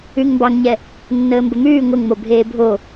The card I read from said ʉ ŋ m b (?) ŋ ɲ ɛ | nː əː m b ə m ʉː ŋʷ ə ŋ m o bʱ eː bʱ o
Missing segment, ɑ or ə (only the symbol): ɑ